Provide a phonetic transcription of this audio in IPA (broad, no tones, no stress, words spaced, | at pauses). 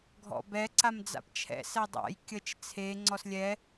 ɡʱɔ̰bɛ ǀamd͡za̰pt͡ʃʰɛ̰ sɛdˤa̰j kʲət͡ʃ t͡sʰe ŋ͡ǀɔslʲɛ